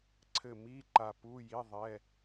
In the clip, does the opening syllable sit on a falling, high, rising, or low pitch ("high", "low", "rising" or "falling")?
falling